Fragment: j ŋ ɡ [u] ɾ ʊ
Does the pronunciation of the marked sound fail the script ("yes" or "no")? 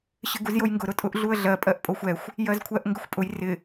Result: yes